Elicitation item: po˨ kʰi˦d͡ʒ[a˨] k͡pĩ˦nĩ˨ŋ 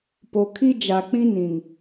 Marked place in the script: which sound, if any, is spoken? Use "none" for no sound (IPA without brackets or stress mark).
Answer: a˨